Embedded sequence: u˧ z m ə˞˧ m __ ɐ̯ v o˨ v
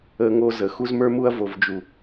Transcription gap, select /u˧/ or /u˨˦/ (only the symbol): u˧